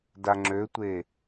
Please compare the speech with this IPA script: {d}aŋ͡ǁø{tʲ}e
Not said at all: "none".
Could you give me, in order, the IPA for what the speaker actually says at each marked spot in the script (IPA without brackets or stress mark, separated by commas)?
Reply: d, tʷ